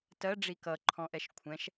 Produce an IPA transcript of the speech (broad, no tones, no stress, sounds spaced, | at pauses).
t ɜ ɖ͡ʐ i k ʌ ǃʰ ɔ̃ ʔ ɛ ʃ kʷʰ ɛ̃ ʃ